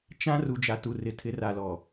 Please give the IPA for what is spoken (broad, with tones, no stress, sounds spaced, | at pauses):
t͡ʃ ã˦ r u˨ d͡ʒ a˨ t u˨ r ɪ˨ tʰ ɪ˨˦ r a˨ l ɔ˨